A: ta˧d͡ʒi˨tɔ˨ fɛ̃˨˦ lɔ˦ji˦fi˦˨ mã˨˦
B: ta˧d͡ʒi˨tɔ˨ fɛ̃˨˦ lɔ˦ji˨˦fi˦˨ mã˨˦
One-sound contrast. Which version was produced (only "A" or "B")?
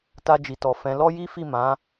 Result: A